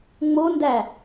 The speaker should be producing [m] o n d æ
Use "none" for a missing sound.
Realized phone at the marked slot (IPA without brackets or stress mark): ŋ͡m